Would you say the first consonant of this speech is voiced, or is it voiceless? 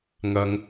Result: voiced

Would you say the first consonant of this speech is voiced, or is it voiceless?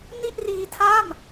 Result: voiced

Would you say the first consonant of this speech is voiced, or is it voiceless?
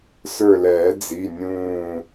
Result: voiceless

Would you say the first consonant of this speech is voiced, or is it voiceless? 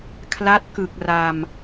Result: voiceless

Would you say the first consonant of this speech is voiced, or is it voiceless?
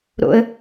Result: voiced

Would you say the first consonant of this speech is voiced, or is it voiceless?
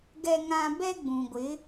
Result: voiced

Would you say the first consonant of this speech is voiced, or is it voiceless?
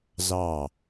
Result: voiced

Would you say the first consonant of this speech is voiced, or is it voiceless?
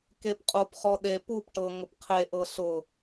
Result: voiceless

